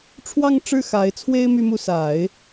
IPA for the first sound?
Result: ʈ͡ʂʰ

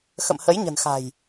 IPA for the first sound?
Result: x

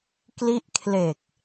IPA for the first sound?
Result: k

